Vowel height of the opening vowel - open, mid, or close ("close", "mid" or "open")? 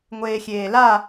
mid